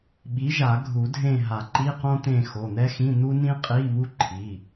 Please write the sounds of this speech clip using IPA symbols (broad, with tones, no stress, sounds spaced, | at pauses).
ɓ i˨˥ ʒ a˨˩˦ ɡʱ u˨˩˦ dʱ ẽ˦˨ ɦ a˨˩˦ ǃ i˧˥˧ q õ˥ t̪ ẽ˦˨ x o˩˧˩ n̪ ɛ˥ x ĩ˧˥˧ n̪ u˥ n ĩ˥ qʼ i˧˥˧ β u˥ ǃʰ i˩˧˩